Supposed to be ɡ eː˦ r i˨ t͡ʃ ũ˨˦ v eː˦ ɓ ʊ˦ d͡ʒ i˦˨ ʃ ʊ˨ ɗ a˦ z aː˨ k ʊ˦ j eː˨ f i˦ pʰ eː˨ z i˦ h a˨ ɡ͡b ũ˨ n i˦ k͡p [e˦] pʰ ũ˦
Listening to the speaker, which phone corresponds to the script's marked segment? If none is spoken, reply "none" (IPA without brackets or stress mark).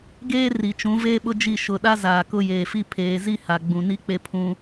e˦